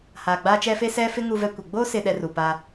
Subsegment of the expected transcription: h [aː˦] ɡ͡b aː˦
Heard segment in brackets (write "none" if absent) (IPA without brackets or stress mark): aː˨